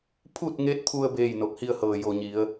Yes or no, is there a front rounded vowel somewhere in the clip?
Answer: no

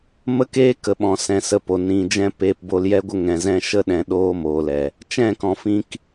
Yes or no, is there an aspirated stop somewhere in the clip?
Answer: no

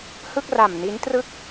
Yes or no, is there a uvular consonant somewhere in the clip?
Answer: no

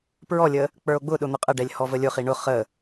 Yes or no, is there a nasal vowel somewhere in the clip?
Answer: no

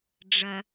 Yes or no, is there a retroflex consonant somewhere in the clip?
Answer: yes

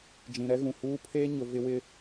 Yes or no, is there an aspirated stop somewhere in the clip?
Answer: yes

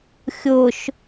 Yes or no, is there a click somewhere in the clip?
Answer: no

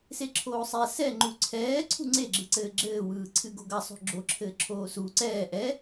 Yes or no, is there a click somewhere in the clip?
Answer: yes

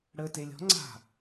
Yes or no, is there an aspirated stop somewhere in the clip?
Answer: no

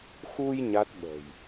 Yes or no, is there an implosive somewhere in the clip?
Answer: yes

